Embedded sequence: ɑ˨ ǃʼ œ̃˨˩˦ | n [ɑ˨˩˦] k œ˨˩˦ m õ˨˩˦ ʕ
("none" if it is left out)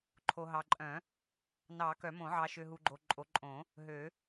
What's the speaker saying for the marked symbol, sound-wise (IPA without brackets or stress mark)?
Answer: ɑ˨˩˦